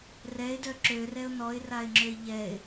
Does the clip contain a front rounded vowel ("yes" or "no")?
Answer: yes